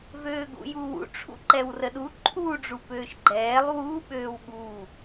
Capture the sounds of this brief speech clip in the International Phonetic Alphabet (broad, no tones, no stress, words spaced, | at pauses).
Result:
vøːɡṵjuwṵ ʈ͡ʂʰṵǃɛwrəɗu ǃʰu ɖ͡ʐupøːʃɡ͡ǃɛːlˠ wu ɓøːwɠu